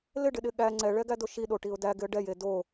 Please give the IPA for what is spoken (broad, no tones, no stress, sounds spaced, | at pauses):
l ɪ ɖ ɪ ɗ ɪ ɠ æ ŋ͡ǀ ɛ ɭ ɛ ɡ æ d o ʃ i ɗ o ʈ i ʊ̯ d æ ɡ ɪ ə̯ ɖ ɛ j e d o